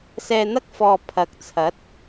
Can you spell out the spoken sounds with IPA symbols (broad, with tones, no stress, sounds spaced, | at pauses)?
s ɛː˧ n̪ ɐ˥ k̚ f ɔː˨ pʰ ɐ˨˥ k̚ t͡sʰ ɐ˨˥ t̚